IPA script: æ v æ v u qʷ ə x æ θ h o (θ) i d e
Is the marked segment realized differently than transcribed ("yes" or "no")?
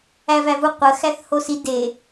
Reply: yes